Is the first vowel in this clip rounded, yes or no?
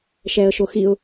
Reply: no